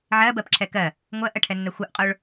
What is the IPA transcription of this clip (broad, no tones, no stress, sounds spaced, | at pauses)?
ʕ ɜ b ɜ p ǁʰ ɛ k ɜ | ŋʷ ɜ ʔ ɜ ʈʰ ɛ nː ɛ xʷ ɜ ʔ qʼ o ɭ